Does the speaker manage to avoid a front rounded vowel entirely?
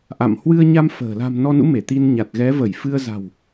yes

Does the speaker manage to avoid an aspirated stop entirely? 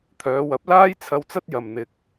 no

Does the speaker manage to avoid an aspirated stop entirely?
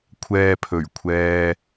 no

